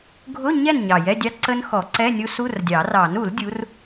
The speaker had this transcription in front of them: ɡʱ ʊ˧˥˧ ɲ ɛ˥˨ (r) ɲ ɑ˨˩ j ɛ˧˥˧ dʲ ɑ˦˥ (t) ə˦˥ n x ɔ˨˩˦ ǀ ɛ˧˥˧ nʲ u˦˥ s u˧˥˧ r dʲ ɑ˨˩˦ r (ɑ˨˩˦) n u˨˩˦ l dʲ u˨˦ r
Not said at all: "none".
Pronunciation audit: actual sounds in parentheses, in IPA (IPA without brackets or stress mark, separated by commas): n, ǀ, ɑ˨˩˦